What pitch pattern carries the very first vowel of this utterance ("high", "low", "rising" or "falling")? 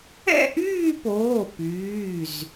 falling